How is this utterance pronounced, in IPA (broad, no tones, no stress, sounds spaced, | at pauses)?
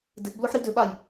d ɪ ʔ b l o ħ ɾ i d ʏ ɓ a j